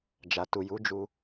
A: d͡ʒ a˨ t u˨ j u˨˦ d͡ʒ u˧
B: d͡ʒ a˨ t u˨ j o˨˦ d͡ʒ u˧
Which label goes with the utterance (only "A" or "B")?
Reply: A